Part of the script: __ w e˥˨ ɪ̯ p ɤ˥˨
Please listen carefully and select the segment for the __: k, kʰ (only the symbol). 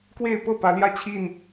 k